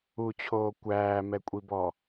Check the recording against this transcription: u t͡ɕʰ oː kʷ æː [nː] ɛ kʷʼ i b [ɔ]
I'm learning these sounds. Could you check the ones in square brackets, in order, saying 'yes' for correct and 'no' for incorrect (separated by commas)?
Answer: no, yes